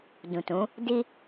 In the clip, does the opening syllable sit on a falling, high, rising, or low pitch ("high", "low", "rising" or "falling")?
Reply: low